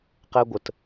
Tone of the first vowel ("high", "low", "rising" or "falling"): high